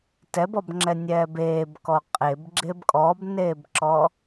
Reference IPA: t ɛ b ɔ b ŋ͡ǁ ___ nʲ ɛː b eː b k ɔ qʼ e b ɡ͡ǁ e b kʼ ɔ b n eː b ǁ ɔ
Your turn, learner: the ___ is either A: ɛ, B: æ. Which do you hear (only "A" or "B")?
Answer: A